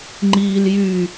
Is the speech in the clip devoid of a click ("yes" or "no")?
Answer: no